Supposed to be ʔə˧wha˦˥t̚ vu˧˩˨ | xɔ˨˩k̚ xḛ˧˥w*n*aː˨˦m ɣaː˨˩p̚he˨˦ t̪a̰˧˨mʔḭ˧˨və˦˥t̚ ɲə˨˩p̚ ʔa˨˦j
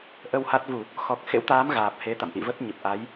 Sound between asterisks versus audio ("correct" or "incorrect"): incorrect